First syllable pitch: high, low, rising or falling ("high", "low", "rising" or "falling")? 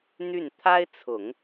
falling